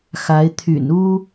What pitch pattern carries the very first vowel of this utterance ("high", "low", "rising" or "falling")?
rising